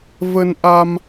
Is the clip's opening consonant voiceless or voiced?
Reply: voiced